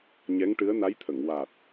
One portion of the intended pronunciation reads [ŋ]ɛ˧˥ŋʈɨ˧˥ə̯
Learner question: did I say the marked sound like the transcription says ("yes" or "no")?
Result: no